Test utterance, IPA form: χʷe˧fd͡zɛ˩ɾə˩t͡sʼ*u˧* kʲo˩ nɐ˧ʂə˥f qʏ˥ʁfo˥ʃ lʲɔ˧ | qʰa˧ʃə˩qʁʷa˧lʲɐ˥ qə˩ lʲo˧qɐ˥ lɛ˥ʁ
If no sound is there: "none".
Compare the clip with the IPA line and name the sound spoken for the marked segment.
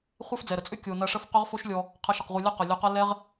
ʏ˧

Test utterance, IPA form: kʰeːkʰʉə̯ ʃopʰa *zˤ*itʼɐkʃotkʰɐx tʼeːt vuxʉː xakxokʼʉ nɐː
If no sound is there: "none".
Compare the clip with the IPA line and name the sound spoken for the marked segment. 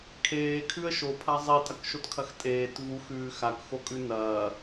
zˤ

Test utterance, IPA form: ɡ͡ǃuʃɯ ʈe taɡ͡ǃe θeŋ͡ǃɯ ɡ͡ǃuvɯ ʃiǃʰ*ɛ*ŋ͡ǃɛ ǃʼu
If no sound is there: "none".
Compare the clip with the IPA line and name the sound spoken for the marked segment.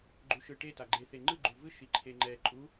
e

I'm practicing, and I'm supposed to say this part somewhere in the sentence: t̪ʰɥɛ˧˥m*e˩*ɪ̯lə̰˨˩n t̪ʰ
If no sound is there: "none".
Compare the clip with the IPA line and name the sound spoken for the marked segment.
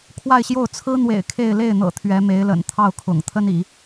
e˧˥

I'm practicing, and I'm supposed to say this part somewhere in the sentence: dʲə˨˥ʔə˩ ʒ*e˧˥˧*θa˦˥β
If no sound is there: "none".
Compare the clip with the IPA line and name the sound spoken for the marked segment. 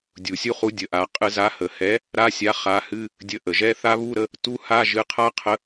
ɛ˧˥˧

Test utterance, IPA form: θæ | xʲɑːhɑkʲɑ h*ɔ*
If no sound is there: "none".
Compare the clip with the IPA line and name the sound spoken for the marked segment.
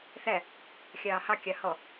ɔ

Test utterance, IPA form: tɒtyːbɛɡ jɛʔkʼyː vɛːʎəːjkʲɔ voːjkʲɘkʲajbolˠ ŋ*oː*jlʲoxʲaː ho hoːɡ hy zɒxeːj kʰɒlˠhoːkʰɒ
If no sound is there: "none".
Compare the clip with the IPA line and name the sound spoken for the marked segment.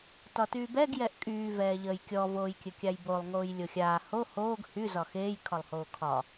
oː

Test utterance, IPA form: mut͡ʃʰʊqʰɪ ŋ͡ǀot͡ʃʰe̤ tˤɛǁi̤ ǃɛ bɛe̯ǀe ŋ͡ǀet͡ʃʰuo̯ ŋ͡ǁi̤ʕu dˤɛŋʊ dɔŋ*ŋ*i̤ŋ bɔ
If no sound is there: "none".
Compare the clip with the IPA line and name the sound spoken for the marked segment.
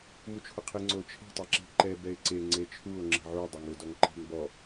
ǃ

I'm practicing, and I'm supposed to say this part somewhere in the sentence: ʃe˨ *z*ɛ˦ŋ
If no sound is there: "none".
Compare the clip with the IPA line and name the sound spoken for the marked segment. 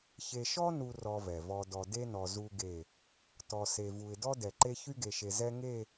z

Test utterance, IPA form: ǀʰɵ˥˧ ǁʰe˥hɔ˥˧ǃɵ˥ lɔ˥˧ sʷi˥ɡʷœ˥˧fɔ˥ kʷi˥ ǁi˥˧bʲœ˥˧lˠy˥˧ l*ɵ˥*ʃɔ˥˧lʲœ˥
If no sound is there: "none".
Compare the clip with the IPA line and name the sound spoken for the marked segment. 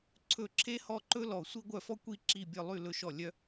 ɵ˥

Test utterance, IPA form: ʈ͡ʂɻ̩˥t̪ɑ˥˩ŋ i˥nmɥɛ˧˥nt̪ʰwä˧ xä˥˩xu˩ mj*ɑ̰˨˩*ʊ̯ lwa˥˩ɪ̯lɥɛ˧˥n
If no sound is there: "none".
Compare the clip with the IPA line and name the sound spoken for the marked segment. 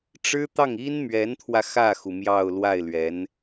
ɑ˥˧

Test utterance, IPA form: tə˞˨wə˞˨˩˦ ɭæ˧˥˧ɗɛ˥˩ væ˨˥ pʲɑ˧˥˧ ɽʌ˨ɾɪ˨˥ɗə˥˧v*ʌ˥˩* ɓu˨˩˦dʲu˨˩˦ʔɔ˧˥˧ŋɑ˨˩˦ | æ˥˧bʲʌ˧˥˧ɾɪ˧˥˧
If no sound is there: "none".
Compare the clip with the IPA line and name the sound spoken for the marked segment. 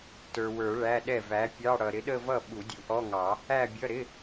ʌ˥˩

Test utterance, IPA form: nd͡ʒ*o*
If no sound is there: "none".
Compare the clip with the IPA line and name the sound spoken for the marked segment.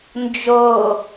o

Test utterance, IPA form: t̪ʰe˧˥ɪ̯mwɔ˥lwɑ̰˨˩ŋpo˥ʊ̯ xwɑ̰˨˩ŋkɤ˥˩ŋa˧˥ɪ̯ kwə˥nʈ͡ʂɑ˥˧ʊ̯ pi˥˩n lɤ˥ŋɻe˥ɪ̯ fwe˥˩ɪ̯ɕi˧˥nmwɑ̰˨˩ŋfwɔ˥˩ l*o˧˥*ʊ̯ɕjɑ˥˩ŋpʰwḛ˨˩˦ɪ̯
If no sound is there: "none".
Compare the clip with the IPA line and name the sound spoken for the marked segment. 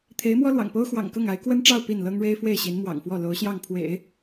o˧˥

